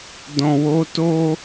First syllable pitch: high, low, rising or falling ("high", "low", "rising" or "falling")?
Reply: low